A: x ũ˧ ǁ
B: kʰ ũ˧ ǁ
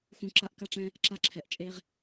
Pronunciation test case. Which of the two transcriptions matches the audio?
A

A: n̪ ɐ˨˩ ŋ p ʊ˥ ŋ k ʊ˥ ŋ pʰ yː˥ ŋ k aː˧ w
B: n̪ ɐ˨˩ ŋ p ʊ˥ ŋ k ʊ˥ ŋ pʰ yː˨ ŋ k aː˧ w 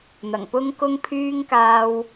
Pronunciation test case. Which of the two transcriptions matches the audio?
A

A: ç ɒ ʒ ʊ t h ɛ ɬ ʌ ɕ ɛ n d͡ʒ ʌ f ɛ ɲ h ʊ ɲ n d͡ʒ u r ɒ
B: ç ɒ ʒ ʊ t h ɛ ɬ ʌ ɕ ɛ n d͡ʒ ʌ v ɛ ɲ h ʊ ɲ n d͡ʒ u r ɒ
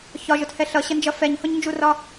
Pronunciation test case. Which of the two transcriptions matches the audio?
A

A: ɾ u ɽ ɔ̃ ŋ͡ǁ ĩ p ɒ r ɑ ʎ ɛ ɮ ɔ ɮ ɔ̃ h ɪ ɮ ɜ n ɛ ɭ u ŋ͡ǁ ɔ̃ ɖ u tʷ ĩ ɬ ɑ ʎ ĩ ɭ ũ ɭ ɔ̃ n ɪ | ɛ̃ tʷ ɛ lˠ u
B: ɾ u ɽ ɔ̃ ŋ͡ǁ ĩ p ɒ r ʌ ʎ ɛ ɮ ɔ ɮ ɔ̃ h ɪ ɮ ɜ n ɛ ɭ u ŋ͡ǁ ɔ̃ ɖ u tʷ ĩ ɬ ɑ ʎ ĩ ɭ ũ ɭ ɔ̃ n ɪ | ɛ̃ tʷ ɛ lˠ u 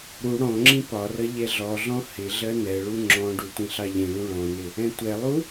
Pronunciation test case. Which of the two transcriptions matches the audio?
B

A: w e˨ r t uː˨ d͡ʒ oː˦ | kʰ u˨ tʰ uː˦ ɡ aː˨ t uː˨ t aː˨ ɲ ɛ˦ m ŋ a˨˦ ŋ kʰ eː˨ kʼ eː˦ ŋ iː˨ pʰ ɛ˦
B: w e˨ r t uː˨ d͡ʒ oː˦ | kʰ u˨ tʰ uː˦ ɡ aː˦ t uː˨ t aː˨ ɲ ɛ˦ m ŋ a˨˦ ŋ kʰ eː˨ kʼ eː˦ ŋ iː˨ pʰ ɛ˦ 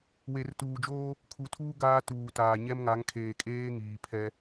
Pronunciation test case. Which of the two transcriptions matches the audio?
B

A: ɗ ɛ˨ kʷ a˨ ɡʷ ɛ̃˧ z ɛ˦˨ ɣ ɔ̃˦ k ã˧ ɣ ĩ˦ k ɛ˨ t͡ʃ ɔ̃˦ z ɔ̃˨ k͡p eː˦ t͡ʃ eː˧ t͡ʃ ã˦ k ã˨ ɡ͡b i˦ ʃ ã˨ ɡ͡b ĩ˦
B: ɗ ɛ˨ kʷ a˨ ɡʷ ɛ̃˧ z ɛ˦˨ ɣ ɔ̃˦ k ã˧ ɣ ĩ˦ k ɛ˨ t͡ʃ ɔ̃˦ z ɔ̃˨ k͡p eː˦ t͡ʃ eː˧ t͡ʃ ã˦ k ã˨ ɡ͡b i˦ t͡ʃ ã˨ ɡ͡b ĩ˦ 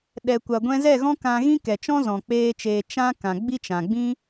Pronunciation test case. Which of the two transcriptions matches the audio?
B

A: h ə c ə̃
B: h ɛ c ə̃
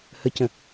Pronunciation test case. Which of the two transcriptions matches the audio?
A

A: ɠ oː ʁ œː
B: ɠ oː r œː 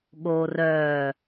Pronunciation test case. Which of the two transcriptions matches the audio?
B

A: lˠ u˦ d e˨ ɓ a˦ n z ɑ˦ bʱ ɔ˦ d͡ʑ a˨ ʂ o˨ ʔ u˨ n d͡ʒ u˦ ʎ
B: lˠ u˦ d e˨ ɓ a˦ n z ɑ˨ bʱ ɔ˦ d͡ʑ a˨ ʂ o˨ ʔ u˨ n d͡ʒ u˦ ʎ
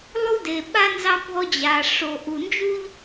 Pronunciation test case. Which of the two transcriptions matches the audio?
A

